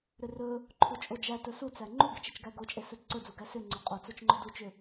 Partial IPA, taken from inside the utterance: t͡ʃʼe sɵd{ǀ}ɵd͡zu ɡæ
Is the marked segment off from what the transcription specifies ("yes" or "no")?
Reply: no